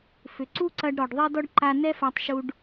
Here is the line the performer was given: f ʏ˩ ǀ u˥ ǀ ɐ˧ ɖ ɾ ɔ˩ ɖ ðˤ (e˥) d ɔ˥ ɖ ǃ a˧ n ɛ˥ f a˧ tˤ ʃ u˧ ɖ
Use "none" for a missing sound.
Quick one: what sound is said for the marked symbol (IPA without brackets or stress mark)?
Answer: e˥